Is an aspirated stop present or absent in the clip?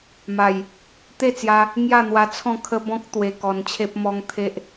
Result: present